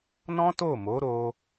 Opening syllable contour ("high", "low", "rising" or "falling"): high